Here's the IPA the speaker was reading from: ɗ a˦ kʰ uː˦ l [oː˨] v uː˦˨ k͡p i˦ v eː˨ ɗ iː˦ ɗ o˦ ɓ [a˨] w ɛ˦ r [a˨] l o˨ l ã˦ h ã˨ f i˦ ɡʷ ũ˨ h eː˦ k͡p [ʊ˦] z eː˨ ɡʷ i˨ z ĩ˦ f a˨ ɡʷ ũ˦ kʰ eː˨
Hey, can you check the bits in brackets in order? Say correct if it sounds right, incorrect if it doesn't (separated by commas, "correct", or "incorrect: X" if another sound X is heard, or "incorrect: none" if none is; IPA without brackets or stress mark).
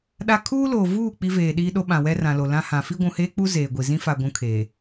correct, incorrect: ã˨, incorrect: ã˨, incorrect: u˦